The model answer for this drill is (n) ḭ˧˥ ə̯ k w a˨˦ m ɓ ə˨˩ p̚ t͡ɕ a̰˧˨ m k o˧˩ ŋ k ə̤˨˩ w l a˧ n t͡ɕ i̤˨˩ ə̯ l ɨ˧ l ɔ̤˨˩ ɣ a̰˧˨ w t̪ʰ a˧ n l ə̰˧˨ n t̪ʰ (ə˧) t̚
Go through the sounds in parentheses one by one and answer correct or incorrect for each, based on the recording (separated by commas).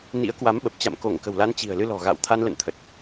correct, incorrect